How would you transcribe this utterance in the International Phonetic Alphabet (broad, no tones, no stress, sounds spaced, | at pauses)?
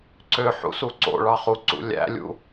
ǀ ø ħ ṵ s u ǀ o̰ ɭ ɑ χ u ǀ ṵ lʲ æ̰ lʲ ṵ